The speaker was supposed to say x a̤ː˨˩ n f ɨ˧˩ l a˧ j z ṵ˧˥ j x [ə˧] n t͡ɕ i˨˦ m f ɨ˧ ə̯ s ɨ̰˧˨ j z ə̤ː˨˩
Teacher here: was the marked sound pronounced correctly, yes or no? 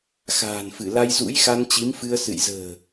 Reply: no